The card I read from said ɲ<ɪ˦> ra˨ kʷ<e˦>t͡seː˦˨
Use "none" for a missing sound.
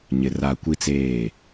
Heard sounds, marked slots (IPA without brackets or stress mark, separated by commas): ɪ˨, i˦